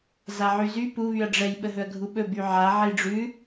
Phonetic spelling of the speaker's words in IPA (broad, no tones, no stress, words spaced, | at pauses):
zaʕyzy pu βyɐ̯ɖ͡ʐɛj ɓəɦɵɐ̯ɡʱuɓɵ byʕa ʕiɖ͡ʐʉ